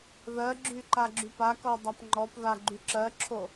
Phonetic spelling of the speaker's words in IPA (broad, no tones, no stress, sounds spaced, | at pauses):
ð ɜ ɡ͡ǁ y ǃ a ɡ͡ǁ y p a k ɔ dˤ a p ŋ͡ǃ ɔ p ð a ɡ͡ǃ y ǁ ɜ ǁʰ o